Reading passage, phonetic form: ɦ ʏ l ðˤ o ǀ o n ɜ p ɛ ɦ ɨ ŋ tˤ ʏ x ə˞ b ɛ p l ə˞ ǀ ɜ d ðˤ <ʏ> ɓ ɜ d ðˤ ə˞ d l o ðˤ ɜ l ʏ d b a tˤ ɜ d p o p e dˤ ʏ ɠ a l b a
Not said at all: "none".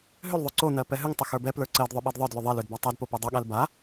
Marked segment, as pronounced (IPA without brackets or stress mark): ʏ